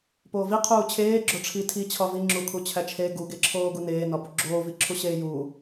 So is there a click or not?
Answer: yes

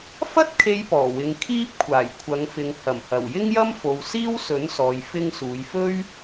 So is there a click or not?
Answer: no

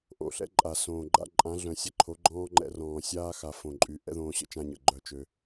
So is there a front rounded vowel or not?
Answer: yes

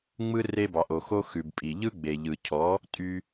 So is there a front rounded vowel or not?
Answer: yes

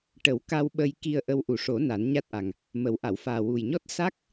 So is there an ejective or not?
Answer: no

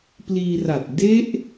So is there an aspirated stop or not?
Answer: no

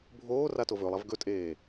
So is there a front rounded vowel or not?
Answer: no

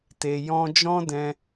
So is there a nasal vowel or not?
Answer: yes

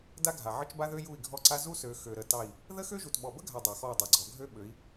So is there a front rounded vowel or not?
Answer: yes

